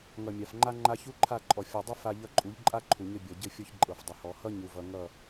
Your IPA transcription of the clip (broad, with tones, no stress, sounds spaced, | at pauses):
ŋ ʌ˨ mʲ a˨ f ŋ͡ǃ a˦ ŋ͡ǃ a˦ ç u˦ ǃʰ a˦˨ ǃʼ ɔ˨ fʲ ɔ˨ dˤ ʌ˦ f a˦ ʎ ʌ˦ ǃʼ u˨˦ ʎ ǃʼ a˦ ǃʰ u˨ ɲ ɘ˦ bʲ ɔ˨ ɟ ɘ˦ fʲ ɔ˦ ç ǃʼ ɤ˨ f dˤ ɘ˨ h ɔ˨˦ h ʌ˦ ɲ u˨ v ʌ˨ ŋ ʌ˦˨